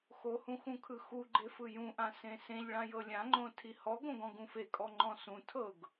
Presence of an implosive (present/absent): absent